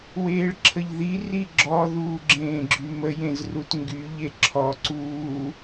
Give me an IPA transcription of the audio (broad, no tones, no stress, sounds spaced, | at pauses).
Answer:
w eː ɭ ǁʰ ə ʎ ð i r i ɡ͡ǁ ɔ ð uː ɡ͡ǁ ẽː ɡ͡ǁ y m ə j ẽ z r u t ŋ ɡ y ʎ e ǁʰ ɔ ǀ uː